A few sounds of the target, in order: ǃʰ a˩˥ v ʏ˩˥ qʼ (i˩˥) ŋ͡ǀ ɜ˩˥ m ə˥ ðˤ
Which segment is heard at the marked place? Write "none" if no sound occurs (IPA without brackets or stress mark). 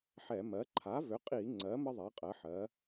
i˧˩˧